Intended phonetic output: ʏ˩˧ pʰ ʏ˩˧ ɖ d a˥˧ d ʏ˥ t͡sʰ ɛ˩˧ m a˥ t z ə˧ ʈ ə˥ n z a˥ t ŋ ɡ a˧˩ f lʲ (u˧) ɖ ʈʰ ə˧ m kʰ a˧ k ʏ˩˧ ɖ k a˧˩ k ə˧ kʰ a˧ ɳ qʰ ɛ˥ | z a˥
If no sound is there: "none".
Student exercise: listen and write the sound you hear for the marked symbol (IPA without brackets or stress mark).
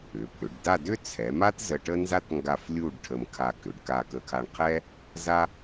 u˥˧